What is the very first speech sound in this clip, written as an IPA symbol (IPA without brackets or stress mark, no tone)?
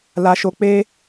l